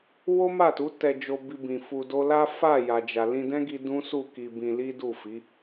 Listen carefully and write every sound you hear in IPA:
wo˦ma˦˨tu˨˦ tɛ˧d͡ʒo˧bi˧bĩ˨ fu˧do˦ la˦fa˦˨ ja˨ d͡ʒa˨lĩ˧dɛ̃˦ɡi˧ dũ˦ su˦˨ ki˧bĩ˧li˦ du˦˨fi˨˦

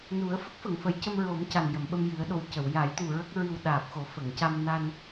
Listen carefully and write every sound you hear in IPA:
nu˨˩˦ə̯ fə˦˥k̚fə˨˩˨ŋfə˨˩˦jcə˧m ɹo˨˩˦m ca˨˩njə˨˩˨mɓə˧m jɨ˨˩˦ə̯ɗo˨˩w cə˨˩˨wja˨˩˦jt̪u˨˩ ɹə˦˥k̚ɹɨ˧w ɗaː˨˩p̚xo˨˩˦ fə˨˩˨ŋca˧mna˧n

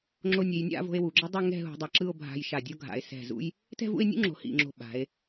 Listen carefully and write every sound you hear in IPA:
ŋ͡ǁo˧nʲe˩˧jnʲa̰˥˧vo̤˧e̯ wu˩˧ɡ͡ǁʌ˥dˤu˥˧ ŋɛ̤˥˧ɦṳ˧dˤa˧ ǁɯ˥˧o̯bʱa̤˧jʃa˧˩dʲo˥ ɡʱa̰˩˧e̯ sɛ̤˧˩zṵ˥j | tɛ̤˥˧vṵ˥˧e̯nʲṵ˥ŋ͡ǁo̤˩˧ hḭ˧˩ŋ͡ǁo̤˧˩ ɓa̤˩˧e̯

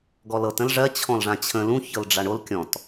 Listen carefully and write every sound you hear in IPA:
ɡɔlɤt ə̃lʐɜ t͡ɕʰɔ̃lʐãt͡ɕʰə̃ lũ çɤlɖ͡ʐaɳol kʲɔ̃t

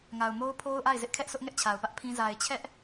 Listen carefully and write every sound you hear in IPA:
ŋa˨ʊ̯mo˦ʊ̯pʰo˦ʊ̯ʔa˦˨ɪ̯ zɪ˦ʔkʰɛ˦ʔsʊ˦ʔ ŋɛ˦ʔt͡ɕʰa˨ʊ̯pä˦ʔ pʰĩ˦ za˨ɪ̯t͡ɕʰɛ˦ʔ

